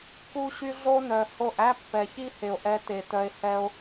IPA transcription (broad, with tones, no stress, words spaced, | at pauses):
ku˧ɕy˧ ɮo˦nœ˨ho˦˨ʔ æ˦pːɛ˨çi˦he˨o̯ ʔɛ˧te˨tœ˧e̯ hɛ˦o̯